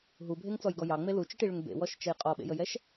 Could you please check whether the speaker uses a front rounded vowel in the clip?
yes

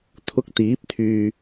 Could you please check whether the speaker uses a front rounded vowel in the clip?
yes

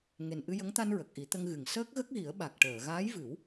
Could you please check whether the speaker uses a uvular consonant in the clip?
no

